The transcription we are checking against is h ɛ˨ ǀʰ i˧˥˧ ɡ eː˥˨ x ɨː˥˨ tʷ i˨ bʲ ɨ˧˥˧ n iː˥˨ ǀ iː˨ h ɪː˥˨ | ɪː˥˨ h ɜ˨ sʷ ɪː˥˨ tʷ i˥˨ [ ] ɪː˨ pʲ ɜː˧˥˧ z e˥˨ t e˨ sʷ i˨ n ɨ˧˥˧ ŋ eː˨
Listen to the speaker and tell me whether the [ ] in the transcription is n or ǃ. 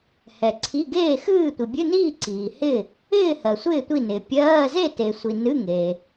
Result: n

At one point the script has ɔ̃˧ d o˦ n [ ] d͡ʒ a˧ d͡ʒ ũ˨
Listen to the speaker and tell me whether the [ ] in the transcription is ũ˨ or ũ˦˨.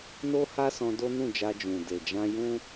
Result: ũ˦˨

